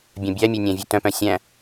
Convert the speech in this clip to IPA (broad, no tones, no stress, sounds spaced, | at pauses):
bʲ œ̃ bʲ æ mʲ œ nʲ æ̃ vʲ ʉ t œ̃ p œ̃ sʲ æ̃